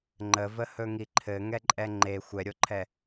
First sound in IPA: ŋ͡ǃ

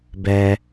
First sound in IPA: b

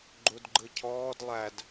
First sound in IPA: ɡ͡ǃ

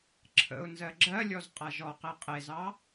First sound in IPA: ǁʰ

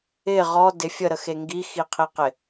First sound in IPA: ɪ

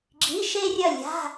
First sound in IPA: ɡ͡ǁ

